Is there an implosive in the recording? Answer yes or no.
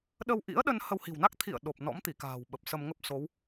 yes